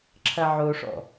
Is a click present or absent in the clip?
present